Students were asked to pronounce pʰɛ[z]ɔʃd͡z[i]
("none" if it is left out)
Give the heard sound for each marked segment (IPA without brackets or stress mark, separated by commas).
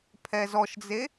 z, e